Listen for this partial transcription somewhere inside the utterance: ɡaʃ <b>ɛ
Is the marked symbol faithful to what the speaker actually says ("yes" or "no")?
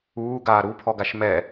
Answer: no